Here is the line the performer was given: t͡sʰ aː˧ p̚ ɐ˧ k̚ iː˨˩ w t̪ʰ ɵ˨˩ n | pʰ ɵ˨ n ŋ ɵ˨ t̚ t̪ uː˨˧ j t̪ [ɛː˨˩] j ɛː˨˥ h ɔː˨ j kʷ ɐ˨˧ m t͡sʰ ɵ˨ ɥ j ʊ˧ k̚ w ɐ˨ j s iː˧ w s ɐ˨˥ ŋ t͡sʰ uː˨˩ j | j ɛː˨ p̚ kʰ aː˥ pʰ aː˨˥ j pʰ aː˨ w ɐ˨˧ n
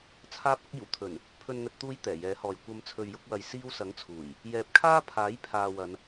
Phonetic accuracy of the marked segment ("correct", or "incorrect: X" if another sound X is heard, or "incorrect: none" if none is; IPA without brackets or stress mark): correct